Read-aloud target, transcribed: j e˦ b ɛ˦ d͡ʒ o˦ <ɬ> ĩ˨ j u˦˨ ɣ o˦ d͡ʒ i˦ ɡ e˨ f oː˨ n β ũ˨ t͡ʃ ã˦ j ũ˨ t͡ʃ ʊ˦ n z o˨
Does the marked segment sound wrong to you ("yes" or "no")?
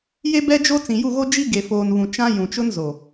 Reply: yes